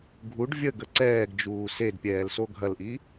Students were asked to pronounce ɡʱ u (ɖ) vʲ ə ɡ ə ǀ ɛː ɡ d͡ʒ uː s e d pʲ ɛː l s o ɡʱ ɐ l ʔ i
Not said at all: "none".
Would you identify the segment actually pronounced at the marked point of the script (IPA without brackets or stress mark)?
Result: ɖ